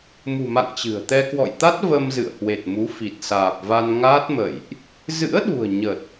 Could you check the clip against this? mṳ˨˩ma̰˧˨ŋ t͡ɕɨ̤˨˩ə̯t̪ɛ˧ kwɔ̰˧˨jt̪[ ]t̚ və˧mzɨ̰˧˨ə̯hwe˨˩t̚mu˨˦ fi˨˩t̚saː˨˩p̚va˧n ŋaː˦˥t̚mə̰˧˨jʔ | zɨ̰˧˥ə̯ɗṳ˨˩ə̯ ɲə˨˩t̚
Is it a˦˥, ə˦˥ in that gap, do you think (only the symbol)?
a˦˥